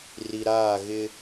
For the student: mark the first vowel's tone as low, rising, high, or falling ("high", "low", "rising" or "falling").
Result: low